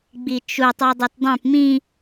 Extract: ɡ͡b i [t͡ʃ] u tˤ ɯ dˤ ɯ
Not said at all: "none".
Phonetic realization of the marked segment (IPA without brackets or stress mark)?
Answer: t͡ʃ